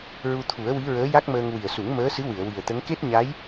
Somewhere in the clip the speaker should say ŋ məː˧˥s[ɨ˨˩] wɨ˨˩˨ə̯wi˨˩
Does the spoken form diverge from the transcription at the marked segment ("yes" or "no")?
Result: yes